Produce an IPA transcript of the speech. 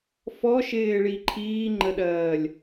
f ɔ ʃ ɪː ɭ i ǃʰ iː ŋ͡ǃ ə ɗ ɜː lʲ

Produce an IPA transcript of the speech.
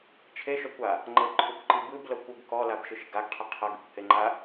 t͡ʃʰ e ʃ ɔ kʷ a | ŋ͡ǃ ɤ ǃʰ u kʷ ǃ i b ɯ b l ɤ kʷ u ɡ k ɔ l a b ʃ ɯ ʃ ɡ a ɡ qʰ i qʰ ɤ ɡ i kʷ h e ŋ͡ǃ a

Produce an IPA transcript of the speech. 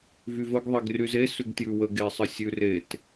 v y v ə ɡ ðˤ ɛ ɡ r y z e s ʉ ɡ t j ʉ w ə ɡ e sˤ ə sʲ ʉ r e t

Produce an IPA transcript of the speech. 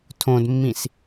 tʰ õ d mː ĩ s

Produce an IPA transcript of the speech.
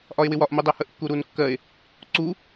ʔ ɒ e̯ w ɪ w ɒ ʔ m u dˤ æ h ə ʔ kː u ɾ u n kː ɜ e̯ | ǀ u

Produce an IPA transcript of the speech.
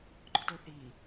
ɡ͡ǃ o t ɵ θ i

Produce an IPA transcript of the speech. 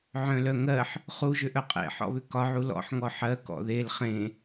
ʕ œ̃ l œ ŋ ɜ ħ | χ u ʒ ʏ ʔ œ qʼ ḛ ħ ɔ̰ β ʏ k ɒ ʕ u l ɔ̰ ħ ŋ ɔ ħ ɜ k ɔ̰ ð e l χ ẽ

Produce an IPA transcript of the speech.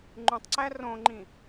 ŋ͡ǃ ũ tˤ ǀ æ r õ ŋ͡ǃ ĩ

